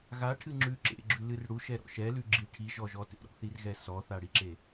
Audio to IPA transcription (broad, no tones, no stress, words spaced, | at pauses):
ɣaʈʰɨ ŋ͡ǁʉ ǁḛɡ͡ǁʉlɨr ɽuʃɛɾɔ̰ ʃɛlʉɡ͡ǁi ʈʰiʒɔʒɔ tḛɾɔ̰θirɣɛ sɔθaɽiǁe